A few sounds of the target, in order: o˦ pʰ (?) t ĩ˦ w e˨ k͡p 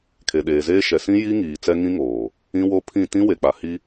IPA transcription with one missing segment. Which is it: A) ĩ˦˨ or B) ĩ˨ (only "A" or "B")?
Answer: A